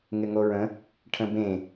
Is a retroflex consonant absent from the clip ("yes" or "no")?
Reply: no